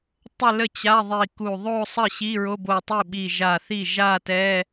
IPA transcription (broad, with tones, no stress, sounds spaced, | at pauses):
tˤ ə˥˧ l ə˥˩ t͡ɕ a˧˥˧ ðˤ i˧˩ k u˧˩ ðˤ o˥˧ sˤ ə˥˩ ɕ i˧˥˧ ɹ o˧˥˧ b o˧˩ tˤ i˥˩ ɓ i˧˩ ʒ a˧˩ θ i˥˩ ʒ a˥˧ t ɛ˧˥˧